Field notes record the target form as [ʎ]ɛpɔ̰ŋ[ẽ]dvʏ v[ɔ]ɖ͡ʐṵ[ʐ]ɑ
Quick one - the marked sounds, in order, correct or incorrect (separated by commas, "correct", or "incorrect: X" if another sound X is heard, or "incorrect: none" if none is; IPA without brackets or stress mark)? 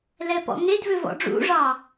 incorrect: l, incorrect: e, incorrect: ɔ̰, correct